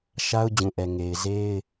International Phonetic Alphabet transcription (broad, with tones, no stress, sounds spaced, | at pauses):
ʃ a˦ ʊ̯ d͡ʑ ũ˨ ʔ ɛ˨ ŋ e˨ ɪ̯ z e˦ ɪ̯